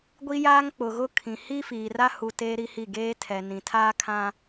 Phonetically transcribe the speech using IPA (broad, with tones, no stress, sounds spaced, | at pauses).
ɡʷ i˦ j aː˦ ŋ k͡p ʊ˨ ɣ ʊ˦ kʰ ĩ˨ h i˦ f iː˨ r a˦ h u˨ t eː˦ ɾ i˦ h i˦˨ ɡ eː˦ tʰ ɛ˨ n ĩ˨ tʰ aː˦ kʰ ã˦